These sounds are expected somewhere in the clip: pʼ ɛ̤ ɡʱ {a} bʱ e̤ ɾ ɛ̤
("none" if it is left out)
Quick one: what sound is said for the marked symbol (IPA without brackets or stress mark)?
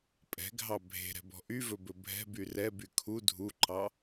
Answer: ɑ